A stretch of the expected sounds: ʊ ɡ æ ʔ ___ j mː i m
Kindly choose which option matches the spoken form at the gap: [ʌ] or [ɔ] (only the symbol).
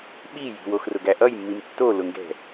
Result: ʌ